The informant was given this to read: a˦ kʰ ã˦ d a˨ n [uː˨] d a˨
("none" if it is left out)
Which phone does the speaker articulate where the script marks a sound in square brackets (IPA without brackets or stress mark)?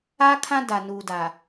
uː˨